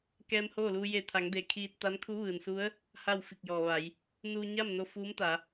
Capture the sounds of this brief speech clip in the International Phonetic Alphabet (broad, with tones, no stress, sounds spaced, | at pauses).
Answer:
k ɛː˧ m h oː˥˨ l uː˧ j e˧˩ t̪ʰ a˩˧ ŋ d eː˩ kʰ iː˧ t̚ t̪ a˧˥ n kʰ u˧˥ ʋ ɯː˩ n s u˧˥ ə̯ | h a˥˨ w f i˧˩ k̚ j ɔː˩ ʋ a˩˧ j | n uː˧ ɲ a˥˨ m n o˧ f uː˧˥ m t̪ a˩˧